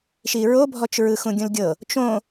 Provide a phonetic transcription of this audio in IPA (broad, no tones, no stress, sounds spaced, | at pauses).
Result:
ʃ i ɹ o bʱ ɔ t͡ʃ ɹ ɯ x ũ ɡʲ ũ l ɡʲ ɤ | t͡ʃ õ